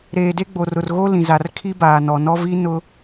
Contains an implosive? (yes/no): no